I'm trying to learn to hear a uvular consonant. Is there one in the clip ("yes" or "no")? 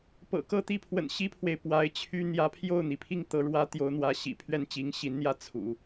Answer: no